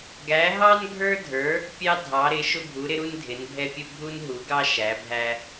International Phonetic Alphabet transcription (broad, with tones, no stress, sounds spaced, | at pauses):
ɡ æ˨˥ ɦ ɑ˥ n ɡʱ ə˞˥ dʱ ə˞˨˥ | pʲ ɑ˥ dʱ ɑ˨˥ ɾ ɪ˨˥ ʃ ʊ˥ bʱ u˨˥ ɾ ɪ˥ ɾ u˥ n dʱ ɪ˨˥ n bʱ ɛ˥ pʲ ʊ˥ bʱ u˥ n ɦ u˨˥ ɡ ɑ˥ ʃ æ˨˥ bʱ æ˥